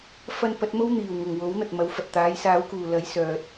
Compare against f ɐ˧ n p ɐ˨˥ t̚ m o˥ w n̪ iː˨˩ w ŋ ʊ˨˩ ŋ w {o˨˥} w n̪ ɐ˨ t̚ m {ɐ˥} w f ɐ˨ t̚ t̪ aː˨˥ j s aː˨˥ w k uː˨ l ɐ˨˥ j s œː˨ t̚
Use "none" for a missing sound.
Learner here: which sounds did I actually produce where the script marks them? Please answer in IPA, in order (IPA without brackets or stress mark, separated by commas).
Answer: o˨˥, ɐ˨˧